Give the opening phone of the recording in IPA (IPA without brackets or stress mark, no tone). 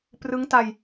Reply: p